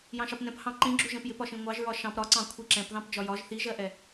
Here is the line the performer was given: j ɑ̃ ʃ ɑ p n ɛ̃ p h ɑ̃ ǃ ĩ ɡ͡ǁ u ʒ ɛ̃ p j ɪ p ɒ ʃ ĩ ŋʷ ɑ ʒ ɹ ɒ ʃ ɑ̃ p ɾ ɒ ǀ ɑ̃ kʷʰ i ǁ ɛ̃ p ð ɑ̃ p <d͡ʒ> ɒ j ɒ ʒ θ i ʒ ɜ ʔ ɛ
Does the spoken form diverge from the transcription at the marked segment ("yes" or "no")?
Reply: no